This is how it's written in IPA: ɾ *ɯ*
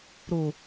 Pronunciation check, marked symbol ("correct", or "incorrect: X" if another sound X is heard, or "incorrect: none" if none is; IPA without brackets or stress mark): incorrect: u